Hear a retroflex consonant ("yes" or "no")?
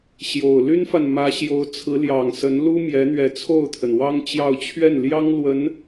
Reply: no